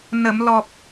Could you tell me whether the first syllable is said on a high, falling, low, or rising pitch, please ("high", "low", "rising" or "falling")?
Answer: low